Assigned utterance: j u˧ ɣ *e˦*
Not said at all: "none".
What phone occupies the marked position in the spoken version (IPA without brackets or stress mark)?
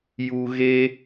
e˦